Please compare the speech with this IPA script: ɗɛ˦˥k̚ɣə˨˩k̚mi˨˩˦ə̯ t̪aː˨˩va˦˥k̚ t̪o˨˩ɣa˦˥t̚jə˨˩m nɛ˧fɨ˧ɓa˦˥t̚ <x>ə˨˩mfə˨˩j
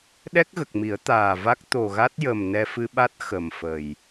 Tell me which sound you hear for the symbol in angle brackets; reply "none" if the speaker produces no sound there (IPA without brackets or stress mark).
x